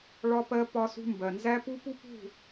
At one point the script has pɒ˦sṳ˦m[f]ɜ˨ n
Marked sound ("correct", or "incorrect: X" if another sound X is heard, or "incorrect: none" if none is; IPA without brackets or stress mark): incorrect: b